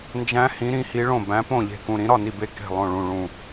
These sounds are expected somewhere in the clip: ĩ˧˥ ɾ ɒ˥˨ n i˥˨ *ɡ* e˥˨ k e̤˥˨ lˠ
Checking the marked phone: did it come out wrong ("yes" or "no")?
yes